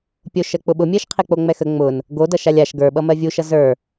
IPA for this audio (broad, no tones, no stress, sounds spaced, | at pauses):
pʲ o ʃ ɜ k͡p ʊ ɓ ʊ mʲ ɜ ʃ qʰ e k͡p o ŋ͡m ɛ x ə ŋ͡m ʊ n | ɡ o d ʌ ʃ a lʲ a ʃ ɡ ə˞ ɓ ʌ m ɜ vʲ u ʃ ʌ z ə˞